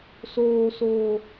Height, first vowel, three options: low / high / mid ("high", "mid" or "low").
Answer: mid